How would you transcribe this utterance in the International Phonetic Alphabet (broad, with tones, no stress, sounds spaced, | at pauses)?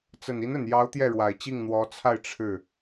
t͡s ə˨˩ n i˧˥ n ə˨˩ n j ɑ˧˥ ʊ̯ t̪ j ɛ˥˩ ɻ w a˨˩ ɪ̯ t͡ɕ i˥˩ ŋ n̪ w ɔ˧˥ t͡sʰ a˥˧ ɪ̯ ʈ͡ʂʰ ɻ̩˥˩